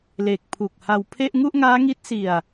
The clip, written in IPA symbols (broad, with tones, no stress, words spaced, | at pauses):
le˨˩k̚pʰu˨˩k̚ ha˧wpʰe˥˩ʔ ŋu˥˩ʔŋaː˦˥ŋi˦˥t̚ si˧a̯